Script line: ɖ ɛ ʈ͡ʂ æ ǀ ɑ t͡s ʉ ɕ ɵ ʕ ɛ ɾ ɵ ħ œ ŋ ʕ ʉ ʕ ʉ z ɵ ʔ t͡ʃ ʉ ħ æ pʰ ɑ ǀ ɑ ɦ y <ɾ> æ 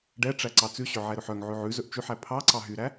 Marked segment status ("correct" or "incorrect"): correct